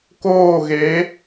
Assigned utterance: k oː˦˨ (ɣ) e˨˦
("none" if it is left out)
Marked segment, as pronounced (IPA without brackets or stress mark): ɣ